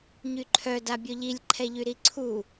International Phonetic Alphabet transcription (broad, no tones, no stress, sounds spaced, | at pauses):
ɲ y ǃʰ œ d a bʲ ɔ ʎ i lʲ ǃʰ ɛ ʎ y ɾ i ǀʰ u